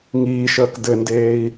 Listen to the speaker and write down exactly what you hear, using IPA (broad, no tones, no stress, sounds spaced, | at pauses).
ŋ iː ʃ əː k d ɘ n d eː i̯